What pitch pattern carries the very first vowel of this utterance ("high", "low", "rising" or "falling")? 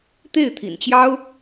falling